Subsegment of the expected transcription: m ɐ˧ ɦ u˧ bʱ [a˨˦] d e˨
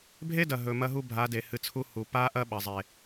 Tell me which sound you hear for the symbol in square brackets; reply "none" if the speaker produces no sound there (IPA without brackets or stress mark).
a˨˦